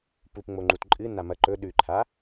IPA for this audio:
p u p ŋ͡m o ŋ͡ǃ u t ǃʼ ɨ n a m ɐ ǃ ɵ ɗ ʉ ǃʰ a

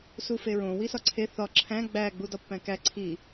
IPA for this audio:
s u f e ɹ õ w i s ɒ ǀʰ e θ ɒ ǁʰ æ̃ ɡ͡b æ ɡ͡b u d ɒ pː æ̃ k æ ǀʰ i

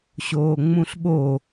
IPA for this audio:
ɕ oː ŋ͡m ũ ɬ ɓ o

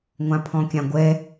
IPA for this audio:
ŋʷ ã pʰ ɔ̃ kʲ ã ɡʷ ɛ

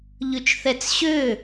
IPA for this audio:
ʎ ʉ t͡ʃ θ ɛ t͡s ɕ ø

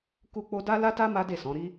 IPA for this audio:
k u˦ k͡p o˦ d a˦ l a˦ t a˦ m a˦ d e˦˨ s ɔ̃˨˦ ɾ i˦

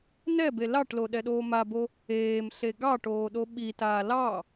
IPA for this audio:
n ɛ b e l ɑ ʈ l o ɗ ɛ ɗ oː m a b o | eː m ɬ e ɡ ɑ ʈ oː ɗ o ɓ i t aː l ɑ

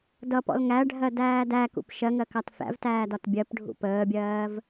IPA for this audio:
d ʌ p ɔ̰ l ŋ æ ɖʱ ɜ d æː d æ k ṵ p ʃ ɜ ŋ ɜ k ɑ t f æ̰ v t æː d ɒ t bʲ ɜ p ɖʱ ṵ p əː bʲ ɜː v

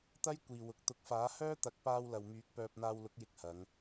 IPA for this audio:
t̪ ɐ˥ j kʷ iː˨ w ʊ˨˥ k̚ t̪ ʊ˨˥ k̚ f aː˨˥ h œː˥ t̪ ɐ˨˥ k̚ p aː˧ w l ɐ˨ w m yː˨˥ k̚ p œː˧ p̚ n̪ aː˧ w l ʊ˨˥ k̚ j ɪ˨ k̚ h ɐ˨˧ ŋ

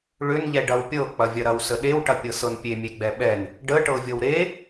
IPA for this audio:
ɭ ʏ n ʎ ɛ ɖ ɐ w pʲ ɤ k͡p ɐ vʲ ɐ ɾ ɐ w s ə ɗ e w ʈ ɐ pʲ ɤ s ɤ n pʲ e mʲ e ɡ͡b ɛ ɓ ɛ n | ɖ ə ʈ ɤ vʲ ɤ w ɾ e

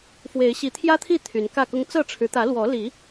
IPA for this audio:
f w e˨˦ ɪ̯ ɕ i˨˦ t̪ʰ j ä˦ t̪ʰ i˥˨ t̪ʰ y˨˦ n k ä˥˨ k ʊ˦ ŋ t͡s ɤ˥˨ ʈ͡ʂʰ ɻ̩˨˦ t̪ ä˨˦ l w ɔ˨˦ l i˨˦

